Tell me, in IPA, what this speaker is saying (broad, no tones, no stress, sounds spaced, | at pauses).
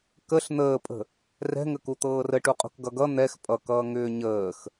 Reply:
k ə ɬ n̪ əː pʼ ə̤ | r ɛ̤ ŋ ə k u t̪ ɤː r ə ʈ u qʼ ṳ k ɡ ʌ ɡ ʌ n̪ ɛ x pʼ ʌ k ʌː ŋ ʏː ɲ əː x